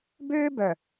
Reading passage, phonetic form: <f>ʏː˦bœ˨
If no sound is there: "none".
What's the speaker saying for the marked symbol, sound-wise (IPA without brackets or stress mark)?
b